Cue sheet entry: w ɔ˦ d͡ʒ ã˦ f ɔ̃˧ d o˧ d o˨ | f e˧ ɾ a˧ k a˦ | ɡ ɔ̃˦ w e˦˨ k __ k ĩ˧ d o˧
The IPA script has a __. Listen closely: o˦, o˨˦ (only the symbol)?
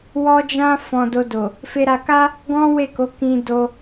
o˨˦